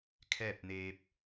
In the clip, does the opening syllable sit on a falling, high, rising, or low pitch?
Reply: falling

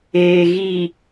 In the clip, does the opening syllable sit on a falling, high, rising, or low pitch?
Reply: low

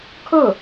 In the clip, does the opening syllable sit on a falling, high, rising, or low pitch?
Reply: falling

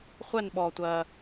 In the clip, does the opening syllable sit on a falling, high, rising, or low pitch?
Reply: falling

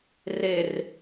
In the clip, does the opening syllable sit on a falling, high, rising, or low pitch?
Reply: low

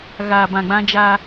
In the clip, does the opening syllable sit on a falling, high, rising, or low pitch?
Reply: low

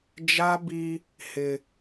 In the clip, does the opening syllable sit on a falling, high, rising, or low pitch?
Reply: high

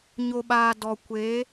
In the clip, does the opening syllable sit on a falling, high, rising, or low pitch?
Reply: low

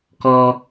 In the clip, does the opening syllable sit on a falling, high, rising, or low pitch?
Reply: high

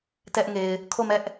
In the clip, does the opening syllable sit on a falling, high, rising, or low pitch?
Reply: high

